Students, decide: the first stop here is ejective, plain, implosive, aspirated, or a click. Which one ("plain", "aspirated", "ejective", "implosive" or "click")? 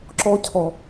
click